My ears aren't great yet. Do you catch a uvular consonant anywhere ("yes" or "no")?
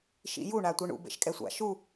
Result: no